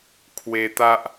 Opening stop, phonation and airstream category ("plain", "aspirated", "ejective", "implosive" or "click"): aspirated